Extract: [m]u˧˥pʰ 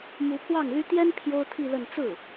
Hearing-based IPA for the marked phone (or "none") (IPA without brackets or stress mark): m